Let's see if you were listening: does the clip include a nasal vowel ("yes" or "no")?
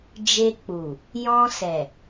yes